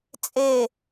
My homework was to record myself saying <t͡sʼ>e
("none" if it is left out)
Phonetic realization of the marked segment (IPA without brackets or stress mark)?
t͡sʼ